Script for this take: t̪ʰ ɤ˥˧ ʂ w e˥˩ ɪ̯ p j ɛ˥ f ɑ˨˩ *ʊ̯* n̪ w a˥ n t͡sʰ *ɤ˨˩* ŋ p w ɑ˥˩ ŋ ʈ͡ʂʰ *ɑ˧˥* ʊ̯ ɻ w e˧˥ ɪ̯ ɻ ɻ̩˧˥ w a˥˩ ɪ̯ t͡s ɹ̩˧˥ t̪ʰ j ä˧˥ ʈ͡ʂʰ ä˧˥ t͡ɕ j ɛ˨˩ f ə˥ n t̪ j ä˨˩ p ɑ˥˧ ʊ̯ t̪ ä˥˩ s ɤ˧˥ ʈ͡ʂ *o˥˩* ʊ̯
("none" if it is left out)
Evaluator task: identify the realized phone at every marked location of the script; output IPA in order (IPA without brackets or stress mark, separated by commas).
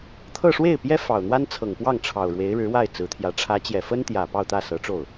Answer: ʊ̯, ɤ˨˩, ɑ˨˩, o˥˩